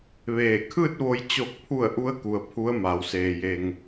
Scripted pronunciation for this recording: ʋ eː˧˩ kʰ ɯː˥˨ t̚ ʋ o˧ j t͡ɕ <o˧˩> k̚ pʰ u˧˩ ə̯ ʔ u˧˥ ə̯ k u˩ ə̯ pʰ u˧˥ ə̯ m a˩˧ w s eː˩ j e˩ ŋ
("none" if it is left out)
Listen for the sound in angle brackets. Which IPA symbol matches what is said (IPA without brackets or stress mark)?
o˧˩